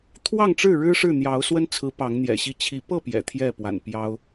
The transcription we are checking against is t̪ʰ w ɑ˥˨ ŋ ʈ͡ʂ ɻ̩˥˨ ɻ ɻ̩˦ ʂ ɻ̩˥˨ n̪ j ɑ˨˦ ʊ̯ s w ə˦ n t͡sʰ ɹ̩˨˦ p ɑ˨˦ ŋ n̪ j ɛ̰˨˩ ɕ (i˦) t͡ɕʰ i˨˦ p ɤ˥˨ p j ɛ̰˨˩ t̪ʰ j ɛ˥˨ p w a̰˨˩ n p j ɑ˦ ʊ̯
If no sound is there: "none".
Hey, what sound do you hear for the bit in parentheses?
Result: i˥˨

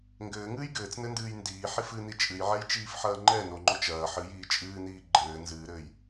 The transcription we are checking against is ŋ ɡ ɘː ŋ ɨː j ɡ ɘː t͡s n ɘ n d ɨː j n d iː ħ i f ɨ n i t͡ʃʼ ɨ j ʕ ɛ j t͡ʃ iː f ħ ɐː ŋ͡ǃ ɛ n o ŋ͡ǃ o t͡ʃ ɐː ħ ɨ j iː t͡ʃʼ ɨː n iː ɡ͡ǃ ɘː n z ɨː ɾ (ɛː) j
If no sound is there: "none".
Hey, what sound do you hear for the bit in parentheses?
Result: ɘː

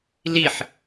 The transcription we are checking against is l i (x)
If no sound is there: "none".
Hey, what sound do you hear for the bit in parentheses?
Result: ħ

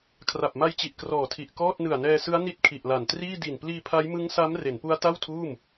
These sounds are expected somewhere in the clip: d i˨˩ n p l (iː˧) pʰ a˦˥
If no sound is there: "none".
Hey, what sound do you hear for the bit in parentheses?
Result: iː˧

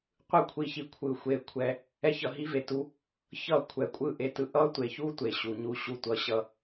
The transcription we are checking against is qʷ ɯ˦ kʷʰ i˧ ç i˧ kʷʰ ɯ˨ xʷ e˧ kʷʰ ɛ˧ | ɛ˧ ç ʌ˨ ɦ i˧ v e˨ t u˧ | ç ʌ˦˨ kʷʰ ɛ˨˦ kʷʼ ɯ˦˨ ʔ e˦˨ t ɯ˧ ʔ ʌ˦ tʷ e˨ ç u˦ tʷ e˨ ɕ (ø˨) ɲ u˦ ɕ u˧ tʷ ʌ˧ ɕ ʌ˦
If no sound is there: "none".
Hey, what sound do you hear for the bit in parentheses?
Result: u˨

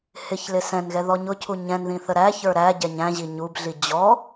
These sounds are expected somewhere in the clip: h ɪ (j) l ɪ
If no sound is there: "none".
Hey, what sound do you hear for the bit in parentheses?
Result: ç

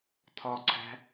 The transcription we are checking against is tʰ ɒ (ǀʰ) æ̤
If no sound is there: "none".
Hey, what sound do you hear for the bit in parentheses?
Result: ǀʰ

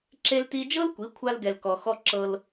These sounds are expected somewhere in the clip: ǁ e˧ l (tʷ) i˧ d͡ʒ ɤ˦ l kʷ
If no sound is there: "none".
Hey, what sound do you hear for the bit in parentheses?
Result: t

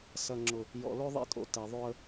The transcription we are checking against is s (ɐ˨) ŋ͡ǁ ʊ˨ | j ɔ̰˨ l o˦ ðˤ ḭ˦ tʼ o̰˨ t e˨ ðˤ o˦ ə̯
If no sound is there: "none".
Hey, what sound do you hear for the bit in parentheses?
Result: ɐ˨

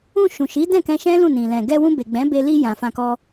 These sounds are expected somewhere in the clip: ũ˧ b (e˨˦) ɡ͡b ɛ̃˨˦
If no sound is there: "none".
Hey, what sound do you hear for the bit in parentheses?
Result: e˨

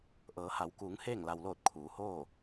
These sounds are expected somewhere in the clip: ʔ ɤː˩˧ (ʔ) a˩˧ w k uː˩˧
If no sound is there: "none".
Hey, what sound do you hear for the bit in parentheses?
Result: h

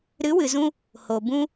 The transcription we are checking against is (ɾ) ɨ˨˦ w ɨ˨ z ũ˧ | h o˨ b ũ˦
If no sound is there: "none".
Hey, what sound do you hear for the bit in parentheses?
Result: ɾ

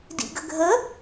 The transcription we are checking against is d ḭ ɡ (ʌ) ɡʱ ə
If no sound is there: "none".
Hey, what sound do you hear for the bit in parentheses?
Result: ə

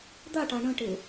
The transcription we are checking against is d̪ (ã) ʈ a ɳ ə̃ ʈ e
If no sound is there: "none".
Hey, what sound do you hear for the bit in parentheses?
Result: a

